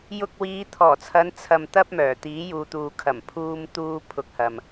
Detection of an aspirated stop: present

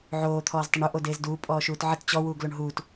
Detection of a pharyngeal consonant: present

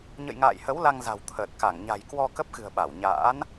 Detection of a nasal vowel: absent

